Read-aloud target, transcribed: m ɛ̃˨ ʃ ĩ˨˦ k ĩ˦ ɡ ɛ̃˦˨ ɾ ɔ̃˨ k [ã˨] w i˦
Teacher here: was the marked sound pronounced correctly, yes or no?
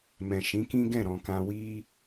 no